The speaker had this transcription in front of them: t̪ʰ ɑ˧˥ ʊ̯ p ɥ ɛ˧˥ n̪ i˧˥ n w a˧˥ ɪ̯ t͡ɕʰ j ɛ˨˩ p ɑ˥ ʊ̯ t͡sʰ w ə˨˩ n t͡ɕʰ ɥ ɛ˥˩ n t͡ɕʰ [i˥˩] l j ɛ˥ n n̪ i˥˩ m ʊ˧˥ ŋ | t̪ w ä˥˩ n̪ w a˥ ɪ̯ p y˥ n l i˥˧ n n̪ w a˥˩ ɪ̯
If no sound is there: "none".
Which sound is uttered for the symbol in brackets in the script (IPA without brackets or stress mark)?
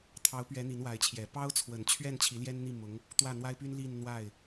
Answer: i˧˥